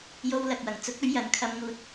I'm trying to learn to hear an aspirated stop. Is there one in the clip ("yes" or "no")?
yes